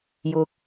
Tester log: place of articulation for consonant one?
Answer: palatal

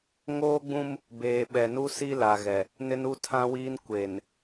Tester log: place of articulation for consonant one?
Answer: velar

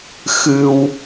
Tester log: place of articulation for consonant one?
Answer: velar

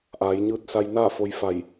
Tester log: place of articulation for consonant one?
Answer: glottal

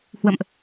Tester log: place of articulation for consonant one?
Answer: glottal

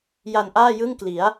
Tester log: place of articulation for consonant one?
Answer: palatal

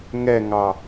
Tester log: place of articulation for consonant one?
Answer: velar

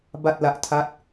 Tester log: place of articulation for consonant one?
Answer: labial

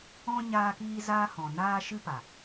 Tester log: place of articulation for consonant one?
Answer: palatal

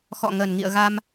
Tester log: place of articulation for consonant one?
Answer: velar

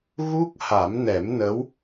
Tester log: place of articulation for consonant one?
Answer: velar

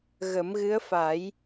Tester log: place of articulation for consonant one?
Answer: velar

